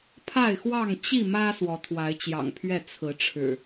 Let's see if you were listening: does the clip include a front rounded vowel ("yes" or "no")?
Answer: no